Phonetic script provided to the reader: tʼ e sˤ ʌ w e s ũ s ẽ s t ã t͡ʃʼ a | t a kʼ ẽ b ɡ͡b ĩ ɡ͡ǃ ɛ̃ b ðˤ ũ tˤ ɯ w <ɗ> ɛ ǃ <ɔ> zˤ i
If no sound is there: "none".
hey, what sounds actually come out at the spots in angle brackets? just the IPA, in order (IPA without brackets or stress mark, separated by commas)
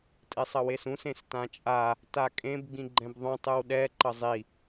ɗ, ʌ